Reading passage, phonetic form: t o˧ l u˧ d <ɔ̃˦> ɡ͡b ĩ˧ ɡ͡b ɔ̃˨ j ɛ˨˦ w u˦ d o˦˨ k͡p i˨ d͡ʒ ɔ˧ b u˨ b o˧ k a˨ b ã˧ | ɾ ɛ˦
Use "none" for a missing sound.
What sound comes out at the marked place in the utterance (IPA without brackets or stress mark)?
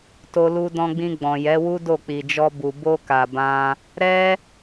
ɔ̃˧